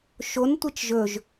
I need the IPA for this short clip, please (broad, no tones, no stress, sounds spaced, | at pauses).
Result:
ʃ o n tʷ i t͡ʃ ʒ ɵ ʒ